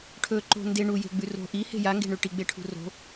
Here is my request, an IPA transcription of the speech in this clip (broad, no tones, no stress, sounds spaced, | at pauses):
ʈʰ ɵ ǃ o̤ n d e ɳ u j e̤ ɡ͡b ʉ r o̤ ʔ i h e̤ j a ŋ ɡ e̤ ɳ ʉ ʈ i ɡ͡b e ʈʰ ṳ r o̤